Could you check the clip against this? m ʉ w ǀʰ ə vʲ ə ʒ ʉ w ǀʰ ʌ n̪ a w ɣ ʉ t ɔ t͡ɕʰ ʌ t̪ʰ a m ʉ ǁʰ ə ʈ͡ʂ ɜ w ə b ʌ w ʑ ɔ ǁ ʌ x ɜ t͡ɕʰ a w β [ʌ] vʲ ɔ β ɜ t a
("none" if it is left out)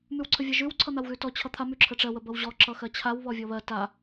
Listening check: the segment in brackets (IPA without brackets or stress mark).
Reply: ɔ